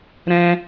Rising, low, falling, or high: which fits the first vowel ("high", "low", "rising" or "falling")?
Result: high